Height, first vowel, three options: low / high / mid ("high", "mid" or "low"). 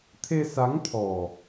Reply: mid